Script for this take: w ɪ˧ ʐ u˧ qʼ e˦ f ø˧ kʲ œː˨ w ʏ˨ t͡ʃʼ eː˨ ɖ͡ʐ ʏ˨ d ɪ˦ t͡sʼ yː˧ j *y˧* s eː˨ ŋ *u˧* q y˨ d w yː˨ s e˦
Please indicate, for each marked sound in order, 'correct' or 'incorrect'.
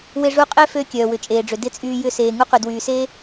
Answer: incorrect, incorrect

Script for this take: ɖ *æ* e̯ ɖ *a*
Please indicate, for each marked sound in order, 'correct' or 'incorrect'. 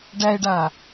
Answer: correct, correct

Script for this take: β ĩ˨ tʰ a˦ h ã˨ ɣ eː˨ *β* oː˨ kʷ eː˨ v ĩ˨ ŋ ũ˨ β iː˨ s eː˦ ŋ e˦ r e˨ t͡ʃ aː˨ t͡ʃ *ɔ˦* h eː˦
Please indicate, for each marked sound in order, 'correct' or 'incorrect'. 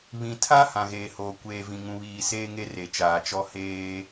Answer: incorrect, correct

